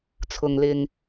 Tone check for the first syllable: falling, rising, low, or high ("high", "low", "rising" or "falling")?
low